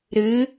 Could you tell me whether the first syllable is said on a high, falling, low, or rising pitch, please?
rising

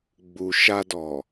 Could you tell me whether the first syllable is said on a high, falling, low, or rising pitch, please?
low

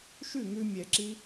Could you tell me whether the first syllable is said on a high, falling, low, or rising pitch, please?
falling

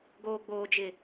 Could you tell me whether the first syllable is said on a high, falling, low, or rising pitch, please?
low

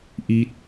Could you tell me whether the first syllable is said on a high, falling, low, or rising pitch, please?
rising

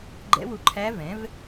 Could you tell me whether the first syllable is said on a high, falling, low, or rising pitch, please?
rising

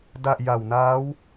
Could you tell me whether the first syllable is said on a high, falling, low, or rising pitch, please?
low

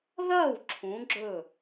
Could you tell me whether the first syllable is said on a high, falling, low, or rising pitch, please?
falling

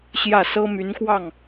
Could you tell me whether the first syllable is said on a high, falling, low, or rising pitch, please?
falling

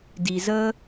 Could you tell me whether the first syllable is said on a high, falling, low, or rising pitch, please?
low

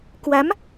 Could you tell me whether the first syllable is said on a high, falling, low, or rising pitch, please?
rising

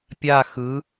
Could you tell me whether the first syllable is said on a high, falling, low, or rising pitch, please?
falling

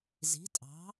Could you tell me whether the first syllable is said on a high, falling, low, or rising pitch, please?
rising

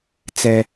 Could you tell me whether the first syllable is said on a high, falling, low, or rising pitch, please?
high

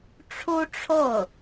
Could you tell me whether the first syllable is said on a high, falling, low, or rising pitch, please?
high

